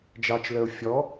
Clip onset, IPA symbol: d͡ʒ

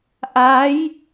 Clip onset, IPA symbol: ʔ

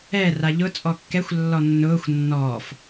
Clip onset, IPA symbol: ɛ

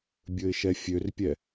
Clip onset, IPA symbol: bʲ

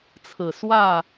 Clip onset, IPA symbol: t͡sʰ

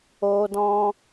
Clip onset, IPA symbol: o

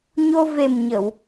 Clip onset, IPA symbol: ɲ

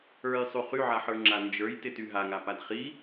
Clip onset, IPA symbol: ə˞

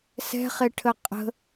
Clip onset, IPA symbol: s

